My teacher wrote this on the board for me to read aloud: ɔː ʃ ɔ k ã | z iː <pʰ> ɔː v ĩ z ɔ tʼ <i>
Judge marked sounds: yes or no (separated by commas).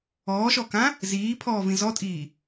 yes, no